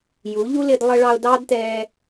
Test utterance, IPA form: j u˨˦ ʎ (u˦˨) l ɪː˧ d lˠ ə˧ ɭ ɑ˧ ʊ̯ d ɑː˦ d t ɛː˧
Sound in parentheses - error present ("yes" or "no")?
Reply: yes